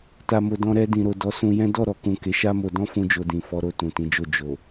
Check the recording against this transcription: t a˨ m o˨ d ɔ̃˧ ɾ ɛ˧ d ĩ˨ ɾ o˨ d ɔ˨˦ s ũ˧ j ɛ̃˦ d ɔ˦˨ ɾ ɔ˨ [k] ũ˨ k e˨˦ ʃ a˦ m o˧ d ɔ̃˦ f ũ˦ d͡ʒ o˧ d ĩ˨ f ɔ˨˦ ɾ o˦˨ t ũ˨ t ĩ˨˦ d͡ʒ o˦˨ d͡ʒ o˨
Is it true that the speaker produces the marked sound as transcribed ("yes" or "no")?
yes